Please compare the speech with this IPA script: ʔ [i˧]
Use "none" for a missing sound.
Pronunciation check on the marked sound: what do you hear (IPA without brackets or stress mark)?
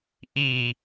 i˨˩